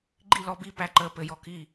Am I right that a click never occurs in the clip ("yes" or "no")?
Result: no